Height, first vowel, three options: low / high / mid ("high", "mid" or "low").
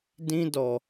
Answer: high